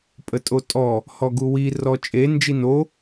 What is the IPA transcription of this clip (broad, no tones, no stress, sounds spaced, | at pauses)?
pʼ ə tʼ o tʼ ɔ | h ɔ ɡ u w i r ɔ t͡ʃʼ e n d͡ʒ i n o